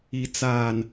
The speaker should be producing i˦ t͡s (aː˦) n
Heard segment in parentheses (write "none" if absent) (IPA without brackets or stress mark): aː˦